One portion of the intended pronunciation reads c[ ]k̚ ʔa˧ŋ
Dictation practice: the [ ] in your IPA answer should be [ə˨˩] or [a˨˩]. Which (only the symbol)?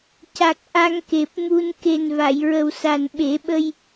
a˨˩